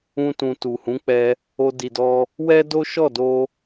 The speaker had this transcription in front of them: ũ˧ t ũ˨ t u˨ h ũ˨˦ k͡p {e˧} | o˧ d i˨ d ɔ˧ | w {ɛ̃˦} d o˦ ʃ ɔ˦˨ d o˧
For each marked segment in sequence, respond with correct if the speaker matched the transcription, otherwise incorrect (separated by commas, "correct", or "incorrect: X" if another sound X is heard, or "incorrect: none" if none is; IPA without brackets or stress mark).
incorrect: ɛ˧, incorrect: ɛ˦